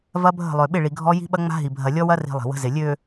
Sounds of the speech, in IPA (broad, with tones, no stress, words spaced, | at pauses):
vɐ˦bʱə̤˦˨lˠø˨ ɓɪ˦˨ɭi˨ ɡʱɔ˦ji̤˦ɓɐ˦ ŋ͡ma̤˦ɦi˨ bʱɐ˨lʲɔ˦ wɐ˦ri̤˨ lˠi̤˨wə̤˦zɪ˨ lʲø˨